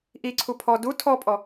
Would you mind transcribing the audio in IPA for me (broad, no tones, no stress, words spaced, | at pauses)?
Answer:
ʔiǀʰu pʰɔ du tʰɔpʼɔ